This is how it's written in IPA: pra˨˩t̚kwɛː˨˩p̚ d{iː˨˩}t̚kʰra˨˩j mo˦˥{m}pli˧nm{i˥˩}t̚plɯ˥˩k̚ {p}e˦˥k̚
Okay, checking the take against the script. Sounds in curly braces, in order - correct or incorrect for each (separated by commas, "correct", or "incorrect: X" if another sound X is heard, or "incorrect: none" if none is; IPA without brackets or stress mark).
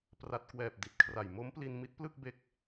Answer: incorrect: i˨˩, correct, incorrect: i˦˥, incorrect: b